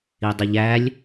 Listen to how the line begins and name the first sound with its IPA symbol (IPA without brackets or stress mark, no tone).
i